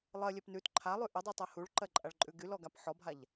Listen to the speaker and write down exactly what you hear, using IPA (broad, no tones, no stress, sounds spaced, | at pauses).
lˠ ɜ lʲ ɛ p n ʉ t ǃʰ a lˠ ʉ ʔ ə dˤ ʉ tˤ ɜ h u ɭ ǃ ɜ ǃʼ a ɭ ǃʼ ʉ ɡ y l ɔ ɡ a p ħ ɔ bʱ a ʎ